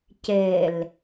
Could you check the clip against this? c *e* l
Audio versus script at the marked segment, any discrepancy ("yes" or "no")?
no